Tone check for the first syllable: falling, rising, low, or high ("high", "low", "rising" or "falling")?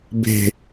low